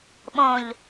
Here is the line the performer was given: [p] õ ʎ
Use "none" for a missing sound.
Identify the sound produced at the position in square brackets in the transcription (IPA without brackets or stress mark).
ɓ